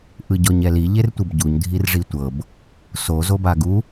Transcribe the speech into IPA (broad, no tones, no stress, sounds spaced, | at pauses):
ʔ ɯ ɟ ɔ ɲ ɛ l i ʎ e r tʷ ɯ b ɟ u ɲ dʱ i r ʐ i tʷ ɤ b | s o z o b a ɡ u